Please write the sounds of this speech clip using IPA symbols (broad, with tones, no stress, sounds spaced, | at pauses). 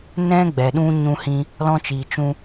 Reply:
n ɛ̃˦ ɡ͡b ɛ˨ ɗ ũ˦ ɲ ũ˦ h ĩ˦ | l ɔ̃˦ t͡ʃ iː˨ t͡ʃ ũ˧